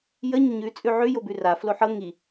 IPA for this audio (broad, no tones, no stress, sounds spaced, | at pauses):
j ə ɲ ə ɲ ʉ t͡sʼ ʉ ʕ ʉ j o b ʉ r a f l o ħ ɤ ŋ i